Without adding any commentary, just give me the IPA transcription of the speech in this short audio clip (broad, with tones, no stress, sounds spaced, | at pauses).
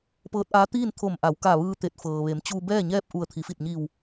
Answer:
p ɤː˧˥ t̚ ʔ aː˧˥ t̪ iː˥˨ n t̪ʰ o˧˩ m ʔ a˩˧ w k a˧˩ ʋ ɯː˧ t̪ e˧˩ t̚ f ɤː˩ ʋ e˩˧ m t͡ɕ uː˧ b ɛː˥˨ ɲ ɛː˥˨ p̚ ʔ u˧˩ ə̯ t̪ʰ i˩˧ f i˧˩ t̚ ɲ iː˧˩ w